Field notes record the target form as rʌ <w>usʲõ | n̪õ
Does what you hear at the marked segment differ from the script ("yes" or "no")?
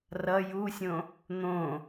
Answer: yes